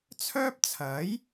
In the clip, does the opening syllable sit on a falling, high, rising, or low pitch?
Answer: high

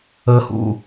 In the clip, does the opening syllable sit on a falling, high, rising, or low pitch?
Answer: low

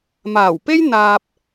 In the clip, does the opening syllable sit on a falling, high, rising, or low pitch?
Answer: low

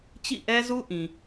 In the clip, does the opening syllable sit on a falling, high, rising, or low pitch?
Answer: falling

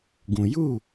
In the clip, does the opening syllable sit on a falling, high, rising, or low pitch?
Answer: low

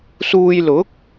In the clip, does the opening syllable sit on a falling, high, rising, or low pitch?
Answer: low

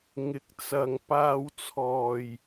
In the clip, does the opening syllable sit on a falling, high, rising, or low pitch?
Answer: rising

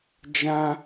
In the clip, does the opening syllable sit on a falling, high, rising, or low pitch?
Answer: high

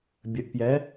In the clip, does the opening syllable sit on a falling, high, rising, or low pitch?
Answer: rising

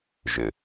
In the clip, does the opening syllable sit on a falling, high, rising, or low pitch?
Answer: low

